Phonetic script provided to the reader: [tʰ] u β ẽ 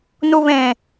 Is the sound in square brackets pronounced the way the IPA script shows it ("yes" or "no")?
no